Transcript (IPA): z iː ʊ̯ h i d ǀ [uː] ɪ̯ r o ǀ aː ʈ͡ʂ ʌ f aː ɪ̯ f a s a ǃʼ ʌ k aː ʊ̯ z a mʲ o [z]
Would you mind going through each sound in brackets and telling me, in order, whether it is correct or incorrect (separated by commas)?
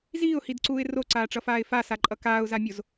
correct, correct